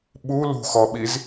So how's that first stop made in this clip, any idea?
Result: implosive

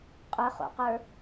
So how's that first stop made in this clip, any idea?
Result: ejective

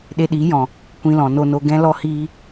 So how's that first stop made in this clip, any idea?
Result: implosive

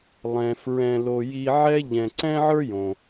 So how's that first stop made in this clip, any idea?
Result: click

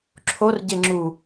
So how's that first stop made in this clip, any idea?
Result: click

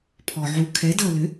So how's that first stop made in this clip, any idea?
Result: aspirated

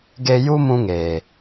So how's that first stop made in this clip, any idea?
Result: plain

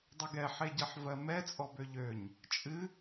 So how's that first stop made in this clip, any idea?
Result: plain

